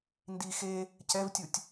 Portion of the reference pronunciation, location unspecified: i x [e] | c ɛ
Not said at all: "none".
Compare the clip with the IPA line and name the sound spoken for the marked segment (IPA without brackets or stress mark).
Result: e